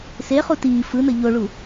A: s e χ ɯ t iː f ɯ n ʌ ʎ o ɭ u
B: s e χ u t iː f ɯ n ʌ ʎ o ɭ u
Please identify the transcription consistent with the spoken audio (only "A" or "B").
B